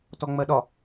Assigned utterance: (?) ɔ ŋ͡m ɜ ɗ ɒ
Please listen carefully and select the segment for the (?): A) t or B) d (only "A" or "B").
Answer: A